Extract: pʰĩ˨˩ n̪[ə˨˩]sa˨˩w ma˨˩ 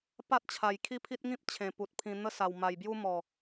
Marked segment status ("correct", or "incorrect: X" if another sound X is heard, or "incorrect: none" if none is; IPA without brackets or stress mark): incorrect: ə˦